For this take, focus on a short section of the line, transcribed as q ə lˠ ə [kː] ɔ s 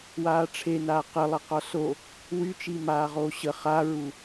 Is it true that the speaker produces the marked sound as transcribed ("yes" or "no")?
no